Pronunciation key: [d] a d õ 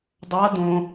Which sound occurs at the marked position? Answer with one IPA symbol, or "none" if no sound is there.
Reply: dˤ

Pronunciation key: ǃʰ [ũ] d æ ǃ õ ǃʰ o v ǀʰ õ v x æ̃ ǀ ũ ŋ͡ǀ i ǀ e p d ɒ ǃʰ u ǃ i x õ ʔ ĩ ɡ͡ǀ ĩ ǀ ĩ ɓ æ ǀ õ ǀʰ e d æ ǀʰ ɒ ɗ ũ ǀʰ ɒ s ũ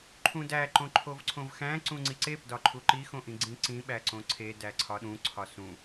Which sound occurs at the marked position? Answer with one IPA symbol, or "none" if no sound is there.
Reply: ũ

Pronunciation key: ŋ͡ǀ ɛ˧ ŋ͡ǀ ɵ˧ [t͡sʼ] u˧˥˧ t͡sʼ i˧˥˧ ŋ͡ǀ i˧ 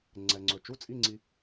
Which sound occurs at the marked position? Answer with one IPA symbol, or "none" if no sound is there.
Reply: t͡ʃ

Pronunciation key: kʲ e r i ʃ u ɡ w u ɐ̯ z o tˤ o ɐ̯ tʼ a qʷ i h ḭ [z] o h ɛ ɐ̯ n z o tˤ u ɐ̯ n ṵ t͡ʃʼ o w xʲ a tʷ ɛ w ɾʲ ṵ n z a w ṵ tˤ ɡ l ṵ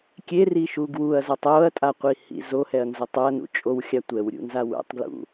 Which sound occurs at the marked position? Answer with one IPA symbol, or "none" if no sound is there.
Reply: z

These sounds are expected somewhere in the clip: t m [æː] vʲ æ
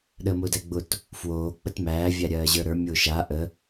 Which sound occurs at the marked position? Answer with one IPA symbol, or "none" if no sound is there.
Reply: æː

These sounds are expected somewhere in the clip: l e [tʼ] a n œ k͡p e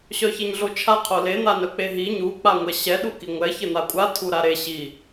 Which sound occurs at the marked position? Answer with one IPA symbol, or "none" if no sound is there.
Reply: n̪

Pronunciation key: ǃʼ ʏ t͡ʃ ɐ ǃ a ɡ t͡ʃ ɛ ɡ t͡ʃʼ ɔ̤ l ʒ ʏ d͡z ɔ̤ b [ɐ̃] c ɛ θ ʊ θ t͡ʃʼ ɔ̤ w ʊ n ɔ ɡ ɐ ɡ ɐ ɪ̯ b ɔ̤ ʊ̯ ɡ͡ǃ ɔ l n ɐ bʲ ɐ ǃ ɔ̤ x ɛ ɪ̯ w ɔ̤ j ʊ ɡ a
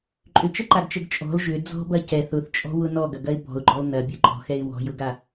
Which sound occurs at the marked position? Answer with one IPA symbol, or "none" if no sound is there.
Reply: ɐ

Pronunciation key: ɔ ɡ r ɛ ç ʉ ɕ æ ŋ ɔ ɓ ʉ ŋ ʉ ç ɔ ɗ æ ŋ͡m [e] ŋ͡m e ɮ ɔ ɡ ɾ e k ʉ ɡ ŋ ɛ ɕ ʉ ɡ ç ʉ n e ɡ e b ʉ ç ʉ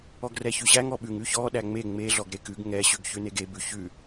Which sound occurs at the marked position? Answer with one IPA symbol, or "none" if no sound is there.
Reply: e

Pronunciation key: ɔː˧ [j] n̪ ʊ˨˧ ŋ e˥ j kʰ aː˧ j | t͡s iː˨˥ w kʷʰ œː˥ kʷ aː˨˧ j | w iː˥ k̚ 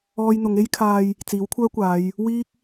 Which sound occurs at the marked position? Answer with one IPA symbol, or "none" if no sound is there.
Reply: j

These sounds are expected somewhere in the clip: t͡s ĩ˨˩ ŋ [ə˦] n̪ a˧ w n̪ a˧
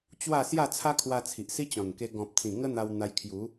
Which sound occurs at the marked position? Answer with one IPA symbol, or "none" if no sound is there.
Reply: ə˦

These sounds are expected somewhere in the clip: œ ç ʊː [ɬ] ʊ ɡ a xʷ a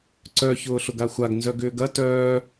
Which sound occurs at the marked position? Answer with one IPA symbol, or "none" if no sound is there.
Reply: ɬ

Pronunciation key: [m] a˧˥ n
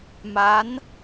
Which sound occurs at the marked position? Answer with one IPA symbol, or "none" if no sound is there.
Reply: m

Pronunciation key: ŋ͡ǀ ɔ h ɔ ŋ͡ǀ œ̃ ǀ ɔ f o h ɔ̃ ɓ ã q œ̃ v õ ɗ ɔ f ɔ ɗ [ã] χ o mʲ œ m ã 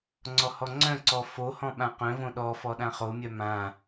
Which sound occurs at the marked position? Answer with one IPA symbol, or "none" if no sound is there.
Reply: ã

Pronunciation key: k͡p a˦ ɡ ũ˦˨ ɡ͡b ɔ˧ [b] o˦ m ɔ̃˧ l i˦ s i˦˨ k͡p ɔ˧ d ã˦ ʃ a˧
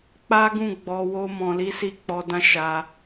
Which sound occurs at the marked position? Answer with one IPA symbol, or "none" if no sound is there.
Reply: w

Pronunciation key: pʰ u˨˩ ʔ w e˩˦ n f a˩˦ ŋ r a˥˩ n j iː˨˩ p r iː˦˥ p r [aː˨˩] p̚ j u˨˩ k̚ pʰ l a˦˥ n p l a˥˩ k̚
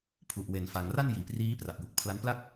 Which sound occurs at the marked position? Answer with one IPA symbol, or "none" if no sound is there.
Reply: a˨˩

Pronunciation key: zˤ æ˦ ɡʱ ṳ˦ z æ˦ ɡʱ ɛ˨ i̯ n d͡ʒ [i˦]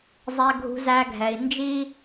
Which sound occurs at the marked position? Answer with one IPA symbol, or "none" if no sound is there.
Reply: i˦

